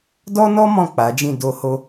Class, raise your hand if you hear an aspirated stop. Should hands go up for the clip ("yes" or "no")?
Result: no